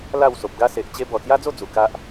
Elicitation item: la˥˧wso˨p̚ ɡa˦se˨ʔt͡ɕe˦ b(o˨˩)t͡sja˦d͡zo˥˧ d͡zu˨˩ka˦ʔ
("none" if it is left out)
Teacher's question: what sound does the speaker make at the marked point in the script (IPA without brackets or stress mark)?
ɔ˨˩